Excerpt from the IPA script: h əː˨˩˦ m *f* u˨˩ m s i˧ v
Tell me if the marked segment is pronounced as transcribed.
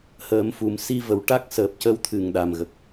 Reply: yes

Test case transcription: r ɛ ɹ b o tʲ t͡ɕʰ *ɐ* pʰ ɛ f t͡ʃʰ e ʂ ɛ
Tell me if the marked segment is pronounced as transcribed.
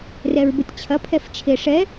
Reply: yes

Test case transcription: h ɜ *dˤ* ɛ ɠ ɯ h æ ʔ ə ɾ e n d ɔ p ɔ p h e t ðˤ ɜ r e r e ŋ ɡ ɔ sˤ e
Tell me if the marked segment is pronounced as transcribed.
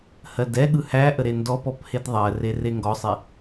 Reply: no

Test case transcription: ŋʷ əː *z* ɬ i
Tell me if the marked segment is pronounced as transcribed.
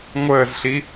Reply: yes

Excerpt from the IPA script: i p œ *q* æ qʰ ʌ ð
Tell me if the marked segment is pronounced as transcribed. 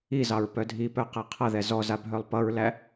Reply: yes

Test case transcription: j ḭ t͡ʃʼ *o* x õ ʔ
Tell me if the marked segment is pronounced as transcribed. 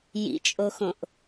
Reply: yes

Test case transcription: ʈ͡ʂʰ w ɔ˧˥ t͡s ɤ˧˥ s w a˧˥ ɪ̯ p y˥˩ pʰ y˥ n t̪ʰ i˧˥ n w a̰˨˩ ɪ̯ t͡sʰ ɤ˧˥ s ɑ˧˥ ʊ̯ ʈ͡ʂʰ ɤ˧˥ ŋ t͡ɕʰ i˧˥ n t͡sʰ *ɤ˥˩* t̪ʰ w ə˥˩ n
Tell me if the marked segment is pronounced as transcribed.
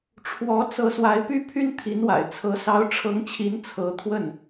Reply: no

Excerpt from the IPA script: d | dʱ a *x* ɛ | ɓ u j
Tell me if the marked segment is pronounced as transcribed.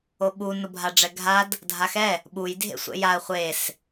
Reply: yes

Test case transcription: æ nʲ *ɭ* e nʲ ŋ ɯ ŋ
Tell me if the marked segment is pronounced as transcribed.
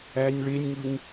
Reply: yes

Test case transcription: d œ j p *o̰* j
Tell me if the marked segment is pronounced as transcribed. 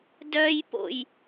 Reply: yes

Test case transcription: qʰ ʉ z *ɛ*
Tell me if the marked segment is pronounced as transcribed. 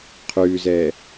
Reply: yes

